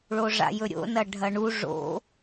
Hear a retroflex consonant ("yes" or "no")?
yes